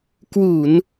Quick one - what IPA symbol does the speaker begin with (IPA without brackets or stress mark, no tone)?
k